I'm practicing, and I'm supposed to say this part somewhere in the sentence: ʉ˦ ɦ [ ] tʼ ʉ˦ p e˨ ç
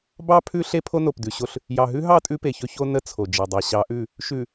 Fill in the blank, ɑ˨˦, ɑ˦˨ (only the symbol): ɑ˦˨